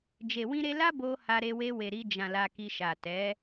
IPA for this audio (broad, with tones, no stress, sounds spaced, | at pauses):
d͡ʒ e˨ w ĩ˧ ɾ e˧ l a˦ b o˧ h a˧ ɾ e˧ w e˧ w e˨ ɾ i˧ d͡ʒ ã˨ l a˧ k i˧ ʃ a˨ t ɛ˨˦